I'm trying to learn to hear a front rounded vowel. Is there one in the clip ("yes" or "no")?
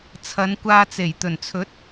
no